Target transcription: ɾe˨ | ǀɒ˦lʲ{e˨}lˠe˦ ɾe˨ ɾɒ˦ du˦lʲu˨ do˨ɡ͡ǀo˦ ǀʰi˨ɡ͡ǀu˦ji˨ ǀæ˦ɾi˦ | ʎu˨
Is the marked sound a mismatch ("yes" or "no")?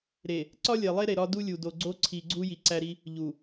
no